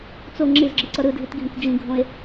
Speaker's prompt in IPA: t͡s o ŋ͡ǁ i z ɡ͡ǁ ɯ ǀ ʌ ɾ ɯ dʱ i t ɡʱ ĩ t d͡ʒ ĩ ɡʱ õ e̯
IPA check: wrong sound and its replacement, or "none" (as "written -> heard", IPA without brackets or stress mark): none